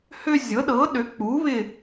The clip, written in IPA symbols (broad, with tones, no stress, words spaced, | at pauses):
hø˦ zʲɤ˩˥ɗɤ˩˥ɗø˩˥ k͡pu˩˥βɪ˦˨